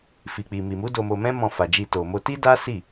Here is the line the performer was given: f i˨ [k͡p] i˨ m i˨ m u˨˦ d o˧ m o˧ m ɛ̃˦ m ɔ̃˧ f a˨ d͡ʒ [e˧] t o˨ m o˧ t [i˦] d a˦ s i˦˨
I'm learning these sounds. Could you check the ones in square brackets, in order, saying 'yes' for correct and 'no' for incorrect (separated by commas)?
yes, no, yes